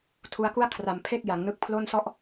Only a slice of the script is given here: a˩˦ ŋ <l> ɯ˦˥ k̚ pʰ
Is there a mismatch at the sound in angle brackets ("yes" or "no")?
yes